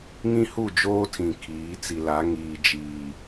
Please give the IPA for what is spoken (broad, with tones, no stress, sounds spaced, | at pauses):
ŋ ĩ˦ h u˦˨ d͡ʒ oː˦ tʰ ĩ˨ kʰ iː˨˦ t͡s i˨ l a˨˦ ŋ iː˨ d͡ʒ iː˨